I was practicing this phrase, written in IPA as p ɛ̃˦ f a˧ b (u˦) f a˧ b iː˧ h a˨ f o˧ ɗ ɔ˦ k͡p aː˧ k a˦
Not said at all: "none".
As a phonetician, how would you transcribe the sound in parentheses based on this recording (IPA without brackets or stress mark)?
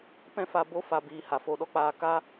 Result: o˦